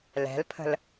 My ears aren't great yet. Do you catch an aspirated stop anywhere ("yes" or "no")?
yes